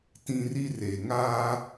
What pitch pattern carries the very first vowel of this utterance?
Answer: high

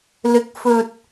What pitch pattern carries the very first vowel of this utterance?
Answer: rising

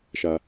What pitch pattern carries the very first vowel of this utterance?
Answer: high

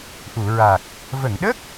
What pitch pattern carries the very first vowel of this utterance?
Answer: low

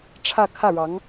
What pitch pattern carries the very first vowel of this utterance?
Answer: falling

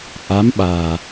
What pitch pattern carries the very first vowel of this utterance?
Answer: rising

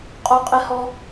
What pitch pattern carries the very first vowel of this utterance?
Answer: high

